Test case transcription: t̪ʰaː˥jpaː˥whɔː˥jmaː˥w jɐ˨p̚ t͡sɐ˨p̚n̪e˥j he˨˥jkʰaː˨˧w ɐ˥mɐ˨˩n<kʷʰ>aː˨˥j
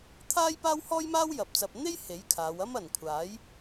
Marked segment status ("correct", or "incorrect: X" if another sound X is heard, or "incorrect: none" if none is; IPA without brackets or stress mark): correct